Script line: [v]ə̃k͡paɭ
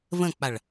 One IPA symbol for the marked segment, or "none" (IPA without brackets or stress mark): v